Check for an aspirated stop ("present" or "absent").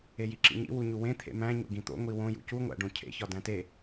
present